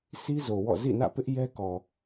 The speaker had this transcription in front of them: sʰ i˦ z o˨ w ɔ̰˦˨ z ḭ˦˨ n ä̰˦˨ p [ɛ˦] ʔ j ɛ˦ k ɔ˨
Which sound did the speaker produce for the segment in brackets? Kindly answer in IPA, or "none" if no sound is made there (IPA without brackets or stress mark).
ɪ˦